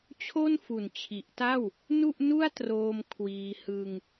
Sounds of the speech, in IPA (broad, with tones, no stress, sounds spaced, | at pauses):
t͡ɕʰ o˥˩ n f u˨˩ n t͡ɕʰ i˨˩ ʔ t a˥˩ w | n u˥˩ ʔ n u˥˩ a̯ t r oː˧ m kʰ w iː˧ h ɯ˧ ŋ